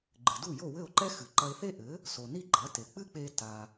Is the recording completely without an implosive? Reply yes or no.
yes